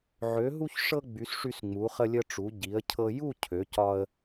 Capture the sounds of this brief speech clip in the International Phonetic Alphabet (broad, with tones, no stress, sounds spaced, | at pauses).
ʕ ø˩˧ ɦ u˧ ç ʂ ɤ˧ ɡ͡b y˩˧ s ʂ y˧ s ŋ͡m u˩˧ χ ə˧ lʲ ə˧ ʈ͡ʂ u˩˧ ɟ i˩˧ ə̯ cʰ ɤ˧ j u˥˧ cʰ ø˩˧ c ɒ˧ ə̯